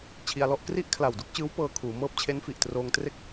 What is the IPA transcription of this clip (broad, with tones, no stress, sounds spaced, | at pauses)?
t͡ɕʰ i˧ a̯ l ɔ˥˩ ʔ k r i˥˩ ʔ kʰ l a˨˩ w d u˥˩ k̚ t͡ɕ ɯː˦˥ w p ɤː˧ kʰ uː˩˦ m ɤː˦˥ p̚ t͡ɕʰ e˦˥ n f i˨˩ ʔ t r oː˧ ŋ t r e˥˩ k̚